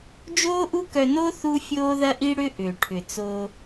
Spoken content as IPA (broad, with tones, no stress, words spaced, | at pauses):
d͡ʒoː˥ʔu˥kœ˧no˥ θu˥fʲoː˥ðɐ˥ʔi˥ ɽʏ˥ʔʏː˩ʈʰʏ˩t͡so˧